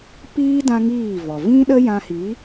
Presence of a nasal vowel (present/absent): present